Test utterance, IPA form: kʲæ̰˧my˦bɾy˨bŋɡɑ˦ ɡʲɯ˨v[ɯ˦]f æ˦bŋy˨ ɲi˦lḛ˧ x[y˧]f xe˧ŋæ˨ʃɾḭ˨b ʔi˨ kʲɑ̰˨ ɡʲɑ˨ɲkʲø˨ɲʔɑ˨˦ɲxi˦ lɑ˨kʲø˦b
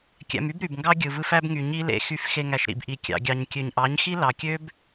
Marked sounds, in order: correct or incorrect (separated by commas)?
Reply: correct, correct